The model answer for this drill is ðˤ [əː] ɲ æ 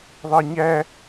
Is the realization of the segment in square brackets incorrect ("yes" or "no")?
no